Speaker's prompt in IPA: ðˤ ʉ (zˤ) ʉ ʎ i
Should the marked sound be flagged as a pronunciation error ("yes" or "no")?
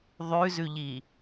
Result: yes